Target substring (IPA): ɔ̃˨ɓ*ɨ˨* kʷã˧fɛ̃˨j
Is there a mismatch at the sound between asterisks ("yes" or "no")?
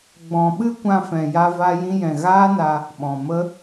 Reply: yes